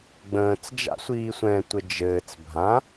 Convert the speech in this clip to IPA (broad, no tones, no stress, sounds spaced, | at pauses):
ɡ͡b ə̃ː t͡s d͡ʒ a̰ sʷ iː sʷ ɛ̃ tʷ ɘ d͡ʒ ɘː t͡s bʱ ã